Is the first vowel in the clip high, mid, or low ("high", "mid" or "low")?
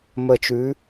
mid